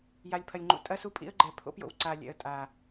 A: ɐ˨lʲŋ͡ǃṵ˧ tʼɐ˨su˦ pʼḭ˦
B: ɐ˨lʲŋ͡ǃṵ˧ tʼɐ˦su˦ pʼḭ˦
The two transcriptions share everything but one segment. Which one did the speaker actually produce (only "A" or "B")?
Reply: B